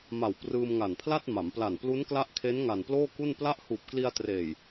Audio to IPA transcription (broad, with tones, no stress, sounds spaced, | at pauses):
m a˨˩ w p r ɯː˧ m ŋ a˨˩ n pʰ l a˥˩ t̚ m a˩˦ m p l a˨˩ n p l u˦˥ n k l a˦˥ ʔ kʰ e˦˥ n ŋ a˨˩ n p l oː˥˩ k u˥˩ n p l a˦˥ ʔ h uː˨˩ p̚ k l i˧ a̯ t r eː˨˩ j